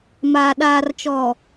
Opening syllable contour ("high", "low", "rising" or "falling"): low